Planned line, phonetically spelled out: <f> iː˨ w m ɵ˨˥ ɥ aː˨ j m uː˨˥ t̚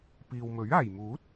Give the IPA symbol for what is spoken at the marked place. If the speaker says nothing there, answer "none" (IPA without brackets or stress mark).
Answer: p